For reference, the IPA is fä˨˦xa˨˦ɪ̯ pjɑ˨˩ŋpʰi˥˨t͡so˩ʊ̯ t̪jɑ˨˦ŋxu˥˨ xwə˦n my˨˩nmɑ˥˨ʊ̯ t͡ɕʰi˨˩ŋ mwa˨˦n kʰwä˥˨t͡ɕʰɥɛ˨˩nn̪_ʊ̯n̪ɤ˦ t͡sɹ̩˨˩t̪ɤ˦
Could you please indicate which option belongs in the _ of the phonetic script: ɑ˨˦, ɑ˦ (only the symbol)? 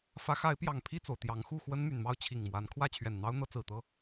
ɑ˦